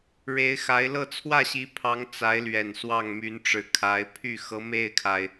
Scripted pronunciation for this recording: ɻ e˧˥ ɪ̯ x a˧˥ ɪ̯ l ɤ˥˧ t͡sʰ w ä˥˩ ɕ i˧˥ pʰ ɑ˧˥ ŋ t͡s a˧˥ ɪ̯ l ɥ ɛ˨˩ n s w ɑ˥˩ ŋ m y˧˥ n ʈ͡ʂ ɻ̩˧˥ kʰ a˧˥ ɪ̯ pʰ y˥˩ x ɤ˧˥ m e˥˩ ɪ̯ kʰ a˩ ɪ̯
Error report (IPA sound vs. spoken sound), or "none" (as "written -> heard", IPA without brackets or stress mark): none